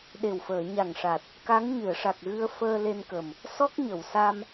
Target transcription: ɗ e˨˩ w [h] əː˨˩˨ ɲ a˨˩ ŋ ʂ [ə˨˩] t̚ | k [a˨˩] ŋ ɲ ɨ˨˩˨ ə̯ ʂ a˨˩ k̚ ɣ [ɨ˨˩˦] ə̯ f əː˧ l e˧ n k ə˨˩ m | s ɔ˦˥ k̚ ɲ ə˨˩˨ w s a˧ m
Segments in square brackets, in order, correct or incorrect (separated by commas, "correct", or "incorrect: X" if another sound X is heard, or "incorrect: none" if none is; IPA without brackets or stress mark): incorrect: f, incorrect: a˨˩, incorrect: a˧˥, incorrect: ɨ˧